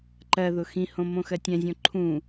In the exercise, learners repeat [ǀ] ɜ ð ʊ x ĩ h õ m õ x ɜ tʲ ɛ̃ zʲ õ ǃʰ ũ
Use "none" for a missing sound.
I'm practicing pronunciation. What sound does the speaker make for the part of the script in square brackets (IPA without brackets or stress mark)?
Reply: ǃ